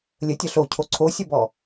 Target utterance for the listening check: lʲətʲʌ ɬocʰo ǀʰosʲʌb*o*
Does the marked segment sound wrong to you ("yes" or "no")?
yes